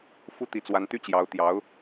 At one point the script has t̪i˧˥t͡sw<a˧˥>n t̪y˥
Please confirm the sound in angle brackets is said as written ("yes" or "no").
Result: yes